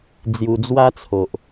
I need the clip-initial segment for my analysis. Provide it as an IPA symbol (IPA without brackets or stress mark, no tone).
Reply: d͡z